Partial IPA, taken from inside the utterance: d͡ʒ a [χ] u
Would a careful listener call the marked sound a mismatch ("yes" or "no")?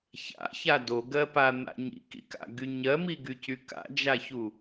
yes